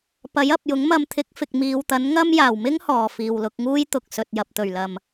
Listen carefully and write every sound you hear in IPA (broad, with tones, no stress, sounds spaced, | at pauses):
p ɐ˨˥ j ɐ˨ p̚ j ʊ˨˥ ŋ m ɐ˧ m t̪ʰ ɪ˨˥ k̚ f ɪ˨ k̚ m iː˨ w t̪ ɐ˨˥ n ŋ ɐ˥ m j aː˨˩ w m ɪ˥ ŋ h ɔː˨˩ f iː˨ w l ʊ˧ k̚ ŋ uː˥ j t̪ ʊ˨ k̚ s ɵ˨ t̚ j ɐ˨ p̚ t̪ ɵ˨˩ ɥ l ɐ˨ m